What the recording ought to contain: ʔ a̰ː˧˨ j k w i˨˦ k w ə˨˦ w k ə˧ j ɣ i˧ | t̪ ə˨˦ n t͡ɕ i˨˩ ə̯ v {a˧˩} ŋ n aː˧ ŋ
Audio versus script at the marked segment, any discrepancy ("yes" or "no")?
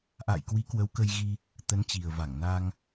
no